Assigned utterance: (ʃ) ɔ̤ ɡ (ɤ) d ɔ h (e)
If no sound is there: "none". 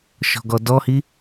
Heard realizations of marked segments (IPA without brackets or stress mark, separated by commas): ʃ, ɔ, i